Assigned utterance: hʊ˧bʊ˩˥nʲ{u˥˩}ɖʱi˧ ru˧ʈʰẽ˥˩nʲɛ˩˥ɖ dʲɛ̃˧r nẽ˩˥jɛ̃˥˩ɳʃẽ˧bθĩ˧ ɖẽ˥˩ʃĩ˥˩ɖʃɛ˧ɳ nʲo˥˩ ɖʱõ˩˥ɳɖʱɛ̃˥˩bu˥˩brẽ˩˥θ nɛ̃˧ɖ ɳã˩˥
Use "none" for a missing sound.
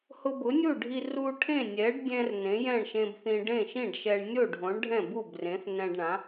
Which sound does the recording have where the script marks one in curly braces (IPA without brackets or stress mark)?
u˥˩